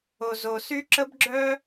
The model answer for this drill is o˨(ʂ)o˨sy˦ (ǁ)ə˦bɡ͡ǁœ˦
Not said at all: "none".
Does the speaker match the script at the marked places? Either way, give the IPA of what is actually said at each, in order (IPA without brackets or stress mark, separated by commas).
z, ǁ